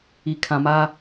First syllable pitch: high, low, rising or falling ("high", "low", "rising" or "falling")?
low